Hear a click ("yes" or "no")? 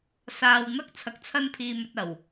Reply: no